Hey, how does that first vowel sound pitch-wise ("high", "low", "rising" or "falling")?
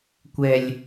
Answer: low